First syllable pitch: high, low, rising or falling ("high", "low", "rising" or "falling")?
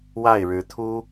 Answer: falling